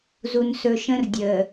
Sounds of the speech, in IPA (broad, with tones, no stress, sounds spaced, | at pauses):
z u˨ n s ɵ˨ ʃ ə̃˦ r dʲ əː˨